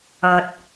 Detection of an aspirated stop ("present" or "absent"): absent